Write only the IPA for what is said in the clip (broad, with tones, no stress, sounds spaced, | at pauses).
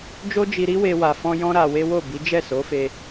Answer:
d͡ʒ o˦ d͡ʒ i˧ ɾ i˦ w e˧ w a˧ f ɔ̃˦ j ɔ̃˦ ɾ a˧ w e˦ w o˦˨ b i˨˦ d͡ʒ ɛ˦˨ s o˨˦ f e˧